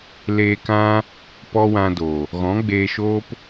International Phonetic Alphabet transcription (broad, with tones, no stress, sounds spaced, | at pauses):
l eː˧ k ã˦ | p ɔ˦ w ã˧ d o˨ | ɣ ɔ̃˨˦ ɡ͡b eː˧ ʃ oː˦ p